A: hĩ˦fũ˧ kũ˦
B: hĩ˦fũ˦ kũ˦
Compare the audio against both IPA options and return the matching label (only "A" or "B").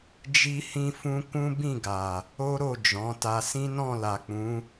B